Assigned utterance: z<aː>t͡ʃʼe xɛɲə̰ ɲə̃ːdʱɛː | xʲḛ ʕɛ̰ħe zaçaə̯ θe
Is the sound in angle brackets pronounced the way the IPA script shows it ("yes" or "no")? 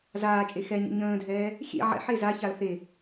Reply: yes